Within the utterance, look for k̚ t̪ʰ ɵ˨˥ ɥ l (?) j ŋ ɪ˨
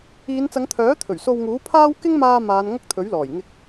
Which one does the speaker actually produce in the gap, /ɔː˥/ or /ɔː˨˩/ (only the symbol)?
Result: ɔː˨˩